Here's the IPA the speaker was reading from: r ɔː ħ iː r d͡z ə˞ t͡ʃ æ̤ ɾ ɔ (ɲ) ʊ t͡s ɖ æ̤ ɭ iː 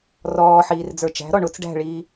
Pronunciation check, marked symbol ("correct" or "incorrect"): incorrect